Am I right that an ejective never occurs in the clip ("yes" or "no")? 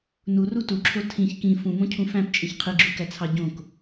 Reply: no